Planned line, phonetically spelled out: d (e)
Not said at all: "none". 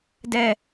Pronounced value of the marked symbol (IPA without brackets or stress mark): ɛ